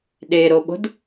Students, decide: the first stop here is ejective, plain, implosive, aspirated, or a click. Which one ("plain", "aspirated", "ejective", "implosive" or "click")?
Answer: implosive